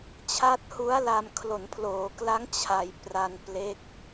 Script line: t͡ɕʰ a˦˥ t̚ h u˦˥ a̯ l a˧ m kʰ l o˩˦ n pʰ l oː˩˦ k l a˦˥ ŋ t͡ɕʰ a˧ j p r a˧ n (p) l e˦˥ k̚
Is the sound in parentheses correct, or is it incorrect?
correct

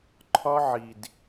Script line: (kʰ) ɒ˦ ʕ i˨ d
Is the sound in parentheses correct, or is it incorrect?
incorrect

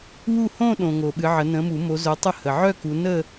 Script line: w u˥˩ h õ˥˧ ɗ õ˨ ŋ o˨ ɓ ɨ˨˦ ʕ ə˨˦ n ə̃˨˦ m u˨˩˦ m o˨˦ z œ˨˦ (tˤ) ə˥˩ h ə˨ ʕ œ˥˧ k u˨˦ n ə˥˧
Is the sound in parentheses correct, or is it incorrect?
correct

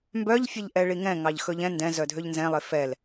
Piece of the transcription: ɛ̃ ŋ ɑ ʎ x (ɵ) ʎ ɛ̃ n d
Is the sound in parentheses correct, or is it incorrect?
correct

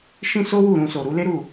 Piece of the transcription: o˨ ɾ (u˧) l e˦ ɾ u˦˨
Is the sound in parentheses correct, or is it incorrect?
incorrect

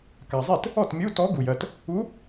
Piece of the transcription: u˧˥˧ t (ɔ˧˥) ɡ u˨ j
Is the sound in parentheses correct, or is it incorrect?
correct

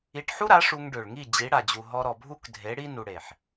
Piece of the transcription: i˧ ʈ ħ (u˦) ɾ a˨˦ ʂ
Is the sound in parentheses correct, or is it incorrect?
correct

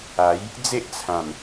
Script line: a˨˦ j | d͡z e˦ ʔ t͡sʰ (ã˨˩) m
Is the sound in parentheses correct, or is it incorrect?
correct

